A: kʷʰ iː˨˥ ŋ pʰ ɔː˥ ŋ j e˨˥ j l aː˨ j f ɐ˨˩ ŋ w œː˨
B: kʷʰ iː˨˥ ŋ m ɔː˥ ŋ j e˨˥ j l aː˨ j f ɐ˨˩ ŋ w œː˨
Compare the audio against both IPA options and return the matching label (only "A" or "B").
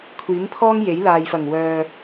A